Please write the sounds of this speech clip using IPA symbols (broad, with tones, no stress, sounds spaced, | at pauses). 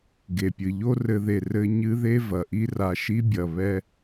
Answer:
ɡ e˨ pʲ ɨ˨ ʎ o˦ r ɘ˧ ð e˨ r ɘ˦ ɲ ɨ˦ ð e˦ v ɐ˨ ʔ i˦ r a˧ ʃ i˦ bʲ ɐ˨ β ɛ˦